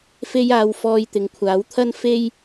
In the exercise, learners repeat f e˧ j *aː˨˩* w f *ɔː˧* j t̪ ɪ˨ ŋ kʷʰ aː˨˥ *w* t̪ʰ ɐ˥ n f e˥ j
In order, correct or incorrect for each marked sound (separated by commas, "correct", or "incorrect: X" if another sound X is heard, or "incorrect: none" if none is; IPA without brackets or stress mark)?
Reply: incorrect: aː˨˧, correct, correct